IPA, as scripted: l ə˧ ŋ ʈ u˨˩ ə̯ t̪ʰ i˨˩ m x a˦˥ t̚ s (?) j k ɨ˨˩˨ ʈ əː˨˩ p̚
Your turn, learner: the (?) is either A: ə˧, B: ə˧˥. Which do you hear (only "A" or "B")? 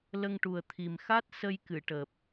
A